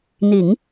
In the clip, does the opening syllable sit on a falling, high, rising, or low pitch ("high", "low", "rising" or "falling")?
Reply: low